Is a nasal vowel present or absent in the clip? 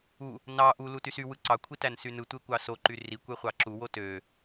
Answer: absent